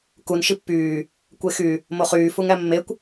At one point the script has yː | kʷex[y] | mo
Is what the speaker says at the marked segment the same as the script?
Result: yes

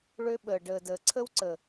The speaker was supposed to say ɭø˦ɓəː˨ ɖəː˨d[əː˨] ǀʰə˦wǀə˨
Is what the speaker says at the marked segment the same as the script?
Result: yes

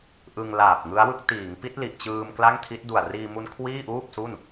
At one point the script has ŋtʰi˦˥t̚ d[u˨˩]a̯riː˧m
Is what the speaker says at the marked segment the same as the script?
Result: yes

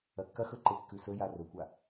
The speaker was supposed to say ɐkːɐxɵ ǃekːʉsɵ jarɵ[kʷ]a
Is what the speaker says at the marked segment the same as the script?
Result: yes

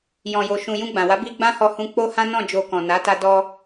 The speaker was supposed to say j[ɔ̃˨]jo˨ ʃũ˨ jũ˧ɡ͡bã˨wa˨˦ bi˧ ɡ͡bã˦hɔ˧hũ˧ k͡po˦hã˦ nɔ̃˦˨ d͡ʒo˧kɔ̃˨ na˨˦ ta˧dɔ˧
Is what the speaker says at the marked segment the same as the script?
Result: yes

